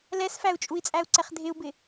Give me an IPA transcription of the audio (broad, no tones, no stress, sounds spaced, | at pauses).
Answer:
l ɛ s f æ u̯ t͡ʃʼ u i̯ t͡sʼ æ u̯ ǀ ɛ χ dʱ ɪ u̯ b ɪ